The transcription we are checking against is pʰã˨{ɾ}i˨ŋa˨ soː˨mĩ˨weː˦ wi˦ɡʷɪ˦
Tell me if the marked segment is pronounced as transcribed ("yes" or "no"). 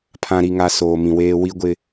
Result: yes